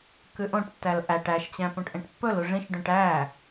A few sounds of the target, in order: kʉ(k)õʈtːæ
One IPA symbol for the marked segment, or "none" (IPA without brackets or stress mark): ʔ